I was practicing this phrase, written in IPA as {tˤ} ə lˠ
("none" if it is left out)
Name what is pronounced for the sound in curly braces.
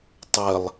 tˤ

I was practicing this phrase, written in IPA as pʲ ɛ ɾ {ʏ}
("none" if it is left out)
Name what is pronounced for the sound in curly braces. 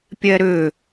ʏ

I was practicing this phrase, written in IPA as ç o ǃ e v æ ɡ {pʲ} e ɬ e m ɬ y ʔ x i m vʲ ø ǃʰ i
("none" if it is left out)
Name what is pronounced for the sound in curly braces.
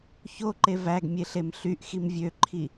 mʲ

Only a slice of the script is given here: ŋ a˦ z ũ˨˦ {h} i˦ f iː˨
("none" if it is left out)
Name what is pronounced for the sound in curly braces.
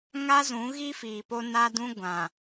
ɣ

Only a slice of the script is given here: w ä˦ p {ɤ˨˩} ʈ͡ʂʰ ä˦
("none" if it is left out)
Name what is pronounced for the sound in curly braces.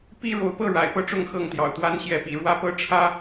ɤ˦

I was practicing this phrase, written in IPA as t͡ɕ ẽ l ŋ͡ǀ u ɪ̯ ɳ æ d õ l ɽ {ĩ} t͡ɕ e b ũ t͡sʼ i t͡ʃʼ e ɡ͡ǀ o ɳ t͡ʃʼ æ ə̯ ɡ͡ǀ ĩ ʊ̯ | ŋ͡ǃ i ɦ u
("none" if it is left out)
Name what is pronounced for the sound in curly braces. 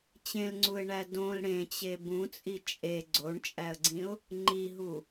ẽ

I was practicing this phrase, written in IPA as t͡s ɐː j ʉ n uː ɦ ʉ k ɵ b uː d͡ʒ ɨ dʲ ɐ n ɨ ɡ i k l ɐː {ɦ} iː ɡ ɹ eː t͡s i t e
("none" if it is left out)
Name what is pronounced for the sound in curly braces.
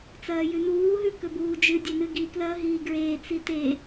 ɦ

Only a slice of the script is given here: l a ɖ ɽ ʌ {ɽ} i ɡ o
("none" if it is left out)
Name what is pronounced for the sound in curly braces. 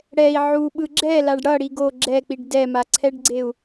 ɽ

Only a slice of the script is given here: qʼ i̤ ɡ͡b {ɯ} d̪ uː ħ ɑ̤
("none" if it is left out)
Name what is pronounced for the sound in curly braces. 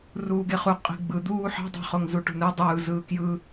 ɯ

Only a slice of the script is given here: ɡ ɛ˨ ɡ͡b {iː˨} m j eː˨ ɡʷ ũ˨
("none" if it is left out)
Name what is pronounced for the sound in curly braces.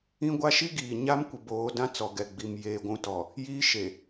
i˨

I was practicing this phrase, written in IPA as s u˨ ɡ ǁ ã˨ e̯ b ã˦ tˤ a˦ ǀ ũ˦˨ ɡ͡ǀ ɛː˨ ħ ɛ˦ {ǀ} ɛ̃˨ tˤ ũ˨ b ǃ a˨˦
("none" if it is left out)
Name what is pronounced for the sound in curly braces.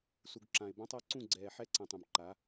ǀ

